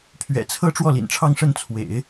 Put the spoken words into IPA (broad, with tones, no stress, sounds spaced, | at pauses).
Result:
pʰ ɥ ɛ̰˨˩ t͡sʰ ɤ˥ ʈ͡ʂ w ɔ˥˩ l ḭ˨˩ n ʈ͡ʂʰ ɑ˥˧ ŋ ʂ ə˥˩ n t͡sʰ w ḛ˨˩˦ ɪ̯